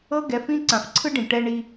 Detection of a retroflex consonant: present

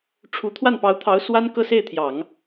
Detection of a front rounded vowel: absent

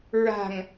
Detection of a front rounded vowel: absent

